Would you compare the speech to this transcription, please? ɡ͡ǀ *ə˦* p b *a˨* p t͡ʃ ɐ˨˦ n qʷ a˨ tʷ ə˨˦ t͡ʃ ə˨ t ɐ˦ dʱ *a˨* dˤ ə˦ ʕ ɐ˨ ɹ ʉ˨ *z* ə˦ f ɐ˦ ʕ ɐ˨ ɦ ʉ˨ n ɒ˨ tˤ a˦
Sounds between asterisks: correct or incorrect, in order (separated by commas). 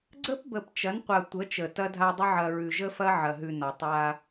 correct, incorrect, incorrect, incorrect